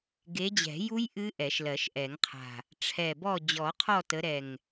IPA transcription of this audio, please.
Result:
ɡ e˨˦ d͡ʑ ɛ̤˨˩˦ j u˦˥ j ʔ ɨ˦˥ ʔ ɛ˨˩˦ ʃ l ɜ˨˩˦ ʃ ʔ ɛ˨˩˦ ŋ qʰ a̤˨˩ | ʈ͡ʂʰ ɛ˨˩ b ɔ˦˨ d͡ʑ ɔ˨˩˦ qʰ ɔ˦˨ t ə˨˦ ɾ ɛ˨˩ ŋ

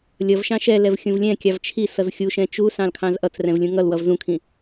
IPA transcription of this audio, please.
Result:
lʲ ʌ v ʃ ɑ̃ ʃ ɛ l ɛ v xʲ ũ v lʲ ɛ̃ kʲ ɑ v t͡ʃʰ i s ʌ z xʲ u ʃ ɛ̃ t͡ʃ u s ɑ̃ l kʰ ɑ̃ z ʔ ʌ t͡s r ɛ̃ v lʲ ũ ŋ ʌ l w ʌ v z ũ kʰ ĩ

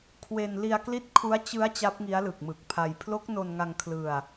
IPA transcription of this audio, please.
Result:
kʰ w e˧ n l i˧ a̯ k l i˦˥ t̚ kʰ u˦˥ a̯ t͡ɕ ɯ˦˥ a̯ t͡ɕ a˦˥ p̚ ŋ i˦˥ a̯ l ɯ˨˩ k̚ m ɯ˨˩ k̚ pʰ a˧ j pʰ l o˦˥ k̚ n o˧ n ŋ a˧ ŋ kʰ l ɯ˧ a̯

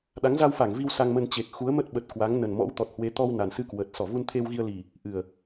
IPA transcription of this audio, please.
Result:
ɗ a˨˦ ŋ z a˧ w f a˧˩ ŋ v i˧ w s a˧ ŋ m ə˧ n t͡ɕ e˨˩ k̚ x u˨˦ ə̯ m ə˦˥ t̚ ɓ ə˨˩ t̚ k w a˨˦ ŋ n ə˨˩ n m ɔ̰˧˥ w t̪ ɔ˨˩ t̚ h w e˨˦ t̪ ɔ˧ w n a˨˩ n s ɨ˧ k w əː˨˩ t̚ s ɔ˧˩ v u˧ n t̪ʰ e˧ w ɣ i˧ ə̯ l i˨˩ | ʔ ɨ˨˩ ə̯

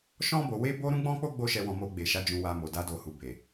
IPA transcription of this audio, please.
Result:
ʃ ɔ̃˧ b o˨ w e˧ b o˧ ɾ ũ˦ ɡ͡b ɔ̃˦ k͡p o˦ ɡ͡b o˧ ʃ ɛ˨ w ɔ̃˨ m o˧ ɡ͡b e˨ ʃ a˨˦ d͡ʒ ũ˧ w a˧ m o˨ d a˧ d o˨ h u˨ b e˨

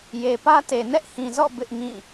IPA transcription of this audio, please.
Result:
j e˨ p ä˦ t e˨ n ɛ˦ ʔ h ĩ˨ z ɔ̰˦˨ b ɪ˦ ʔ ŋ ĩ˦˨

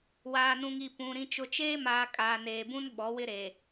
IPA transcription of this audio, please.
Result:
w aː˨ n ũ˨ ŋ i˨ p ũ˨ ɾ ĩ˨ t͡ʃ ʊ˨ t͡ʃ eː˦ m aː˨ kʼ aː˨ n eː˨ b ũ˦ n ɓ ɔ˨˦ w ɪ˦ ɾ e˨

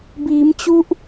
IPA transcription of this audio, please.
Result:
b iː˩˦ m t͡ɕ u˦˥ ʔ

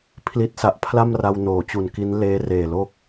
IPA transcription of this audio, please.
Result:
pʰ l i˦˥ t̚ s a˨˩ ʔ pʰ l a˥˩ m r a˧ w n oː˩˦ t͡ɕ u˨˩ n k i˦˥ n l eː˦˥ r eː˨˩ l o˥˩ k̚

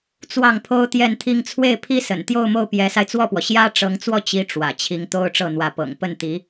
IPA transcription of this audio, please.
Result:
t͡s w ɑ˥˩ ŋ pʰ o˥ ʊ̯ t̪ j ɛ˥˧ n t̪ʰ i˥˧ ŋ t͡sʰ w e˥˩ ɪ̯ pʰ i˥ s ə̰˨˩ n t̪ j o˥˧ ʊ̯ m o˥˩ ʊ̯ p j ɛ˧˥ s a˧ ɪ̯ t͡s w ɔ˥˩ p w ɔ˩ ɕ j ä˥ ʈ͡ʂ ɤ˧˥ ŋ t͡s w ɔ˥˩ t͡ɕ i˥ ʈ͡ʂ w ä̰˨˩ t͡ɕʰ i˧˥ ŋ t̪ o˥ ʊ̯ ʈ͡ʂ ɤ˥˩ n̪ w ä˧˥ p ɤ̰˨˩ ŋ p ə˥˩ n t̪ i˧˥

